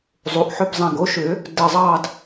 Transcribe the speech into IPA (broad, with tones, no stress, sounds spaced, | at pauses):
zˤ u˩˧˩ ʔ ħ ʏ˥˧ b zˤ ɛ̃˧˩ ɡ o˩˥ ʃ ʏ˨˩˦ | d ɘ˧˩ zˤ ɑ˥˧ d